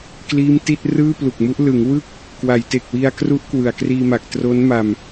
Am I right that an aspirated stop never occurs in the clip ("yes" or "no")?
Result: yes